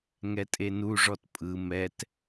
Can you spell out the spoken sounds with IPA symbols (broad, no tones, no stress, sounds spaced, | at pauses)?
ŋ ɛ tʼ e n u ʐ ɔ t pʼ ɯ m ɛ t